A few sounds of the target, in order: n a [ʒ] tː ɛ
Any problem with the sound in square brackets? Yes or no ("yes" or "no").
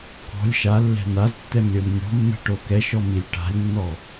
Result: yes